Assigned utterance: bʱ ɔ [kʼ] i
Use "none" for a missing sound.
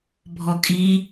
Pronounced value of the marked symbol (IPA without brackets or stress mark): kʼ